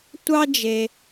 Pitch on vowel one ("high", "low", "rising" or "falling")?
high